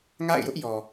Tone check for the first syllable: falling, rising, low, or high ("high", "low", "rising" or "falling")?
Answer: falling